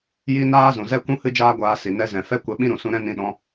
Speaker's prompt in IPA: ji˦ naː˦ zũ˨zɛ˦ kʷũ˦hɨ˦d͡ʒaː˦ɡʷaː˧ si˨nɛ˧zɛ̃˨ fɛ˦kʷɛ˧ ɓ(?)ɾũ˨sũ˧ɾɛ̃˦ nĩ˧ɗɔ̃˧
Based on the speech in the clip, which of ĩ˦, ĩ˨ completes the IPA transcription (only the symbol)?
ĩ˦